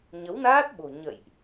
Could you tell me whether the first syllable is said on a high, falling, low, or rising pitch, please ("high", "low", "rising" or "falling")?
rising